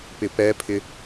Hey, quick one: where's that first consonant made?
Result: lips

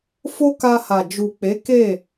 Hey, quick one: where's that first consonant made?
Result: lips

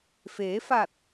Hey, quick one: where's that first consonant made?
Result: lips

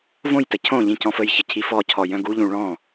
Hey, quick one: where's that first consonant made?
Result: lips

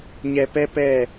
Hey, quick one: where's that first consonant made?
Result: palate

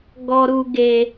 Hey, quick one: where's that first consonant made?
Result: velum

